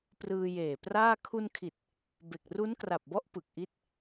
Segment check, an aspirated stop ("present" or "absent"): present